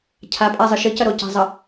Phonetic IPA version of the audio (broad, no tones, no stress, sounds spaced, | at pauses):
cʰ a pʼ a zˤ ɨ ʃ ɨ c ɐ ɾ o c a̤ zˤ ɐ